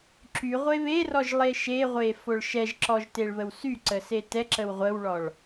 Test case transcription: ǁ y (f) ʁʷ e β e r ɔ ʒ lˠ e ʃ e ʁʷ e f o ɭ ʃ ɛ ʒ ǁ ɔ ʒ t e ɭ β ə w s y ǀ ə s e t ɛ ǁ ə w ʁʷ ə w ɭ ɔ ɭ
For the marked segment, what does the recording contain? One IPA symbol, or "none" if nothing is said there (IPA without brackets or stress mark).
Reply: none